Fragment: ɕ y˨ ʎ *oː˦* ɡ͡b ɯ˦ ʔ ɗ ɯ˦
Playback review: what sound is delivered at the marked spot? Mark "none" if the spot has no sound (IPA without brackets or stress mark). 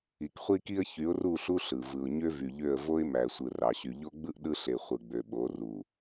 o˦